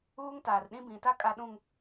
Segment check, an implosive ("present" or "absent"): present